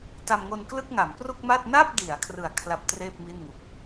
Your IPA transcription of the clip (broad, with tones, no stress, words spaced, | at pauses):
ta˧mŋo˧nklɯ˥˩k̚ ŋa˩˦mpru˥˩k̚ma˥˩t̚ na˥˩p̚di˩˦a̯ kʰrɯ˩˦a̯kʰla˨˩p̚ treː˥˩p̚mi˥˩nŋu˨˩k̚